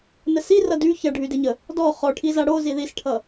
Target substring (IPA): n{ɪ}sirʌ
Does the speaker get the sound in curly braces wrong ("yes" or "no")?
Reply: yes